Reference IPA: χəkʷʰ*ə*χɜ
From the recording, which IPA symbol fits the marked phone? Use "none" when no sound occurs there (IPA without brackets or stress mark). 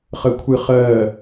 ɨ